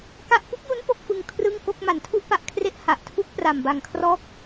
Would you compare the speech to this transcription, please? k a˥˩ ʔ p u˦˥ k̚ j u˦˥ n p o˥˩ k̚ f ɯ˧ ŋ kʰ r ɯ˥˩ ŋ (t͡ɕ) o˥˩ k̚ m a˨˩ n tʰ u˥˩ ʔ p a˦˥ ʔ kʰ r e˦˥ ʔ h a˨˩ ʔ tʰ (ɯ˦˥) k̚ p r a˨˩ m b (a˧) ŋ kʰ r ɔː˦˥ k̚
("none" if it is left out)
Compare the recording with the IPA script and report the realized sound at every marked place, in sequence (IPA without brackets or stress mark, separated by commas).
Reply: k, u˦˥, a˨˩